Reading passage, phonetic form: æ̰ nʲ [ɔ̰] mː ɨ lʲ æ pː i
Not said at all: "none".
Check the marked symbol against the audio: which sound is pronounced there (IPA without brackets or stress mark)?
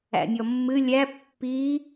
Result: ɔ